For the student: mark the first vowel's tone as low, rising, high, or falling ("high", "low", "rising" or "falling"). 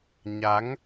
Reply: rising